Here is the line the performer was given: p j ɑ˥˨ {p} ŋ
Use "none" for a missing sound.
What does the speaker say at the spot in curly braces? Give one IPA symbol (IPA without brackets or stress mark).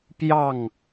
none